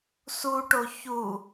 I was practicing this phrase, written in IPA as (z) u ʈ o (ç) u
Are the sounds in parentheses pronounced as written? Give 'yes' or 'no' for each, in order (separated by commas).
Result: no, yes